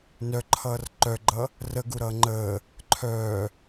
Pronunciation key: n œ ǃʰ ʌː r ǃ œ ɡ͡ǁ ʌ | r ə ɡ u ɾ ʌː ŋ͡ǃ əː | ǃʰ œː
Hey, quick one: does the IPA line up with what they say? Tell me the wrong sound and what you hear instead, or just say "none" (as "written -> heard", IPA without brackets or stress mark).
ɡ͡ǁ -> ɡ͡ǃ